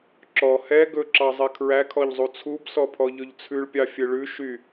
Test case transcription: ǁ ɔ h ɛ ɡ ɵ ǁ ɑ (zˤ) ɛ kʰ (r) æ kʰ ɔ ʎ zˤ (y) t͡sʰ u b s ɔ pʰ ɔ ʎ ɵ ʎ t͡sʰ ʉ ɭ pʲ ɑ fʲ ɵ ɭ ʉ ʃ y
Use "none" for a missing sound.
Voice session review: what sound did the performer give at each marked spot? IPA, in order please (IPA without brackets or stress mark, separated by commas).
zˤ, ɹ, u